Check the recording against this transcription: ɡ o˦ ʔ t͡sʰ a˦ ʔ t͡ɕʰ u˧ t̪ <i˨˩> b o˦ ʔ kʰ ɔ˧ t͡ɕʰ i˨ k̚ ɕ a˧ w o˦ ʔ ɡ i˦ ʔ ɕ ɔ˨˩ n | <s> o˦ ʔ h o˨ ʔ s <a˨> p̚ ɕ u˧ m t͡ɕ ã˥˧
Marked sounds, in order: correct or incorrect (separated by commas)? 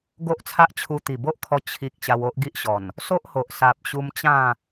correct, correct, correct